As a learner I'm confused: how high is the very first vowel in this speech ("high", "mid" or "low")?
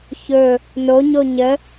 mid